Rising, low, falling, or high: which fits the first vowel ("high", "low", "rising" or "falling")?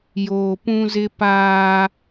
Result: low